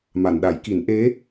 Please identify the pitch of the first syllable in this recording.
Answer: low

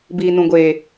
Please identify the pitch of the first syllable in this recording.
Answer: low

